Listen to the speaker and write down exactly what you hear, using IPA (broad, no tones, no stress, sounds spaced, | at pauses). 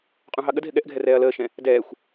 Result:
qʼ ũ ɦ ɑ ɠ ə d ɦ ɪ ɠ ɛ ʔ ɡʱ ɛ r ɛː ɐ̯ l əː ʃ ɛ̃ | d ɛː xʷ